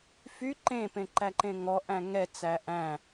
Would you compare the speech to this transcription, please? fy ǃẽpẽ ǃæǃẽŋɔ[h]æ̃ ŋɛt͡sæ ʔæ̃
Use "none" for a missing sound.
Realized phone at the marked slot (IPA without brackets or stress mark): ʔ